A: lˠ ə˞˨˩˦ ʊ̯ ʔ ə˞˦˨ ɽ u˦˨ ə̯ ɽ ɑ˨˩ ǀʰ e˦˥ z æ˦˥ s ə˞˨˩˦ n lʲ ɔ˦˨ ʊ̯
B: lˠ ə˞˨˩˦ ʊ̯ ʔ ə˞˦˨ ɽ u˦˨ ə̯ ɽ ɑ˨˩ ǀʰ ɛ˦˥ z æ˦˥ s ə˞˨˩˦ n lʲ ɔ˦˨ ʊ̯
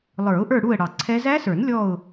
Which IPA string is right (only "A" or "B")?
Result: B